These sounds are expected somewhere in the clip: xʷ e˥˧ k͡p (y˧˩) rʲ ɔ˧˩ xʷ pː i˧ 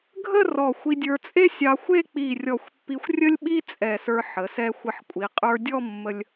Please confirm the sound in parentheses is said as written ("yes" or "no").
no